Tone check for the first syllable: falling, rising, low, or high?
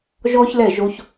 high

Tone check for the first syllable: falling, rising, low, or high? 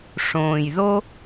low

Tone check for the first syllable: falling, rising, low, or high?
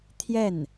falling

